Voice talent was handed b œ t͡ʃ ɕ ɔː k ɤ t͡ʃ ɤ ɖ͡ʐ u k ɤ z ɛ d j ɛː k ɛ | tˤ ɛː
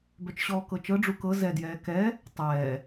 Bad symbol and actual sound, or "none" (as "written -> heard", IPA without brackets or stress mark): none